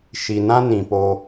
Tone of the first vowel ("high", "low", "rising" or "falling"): low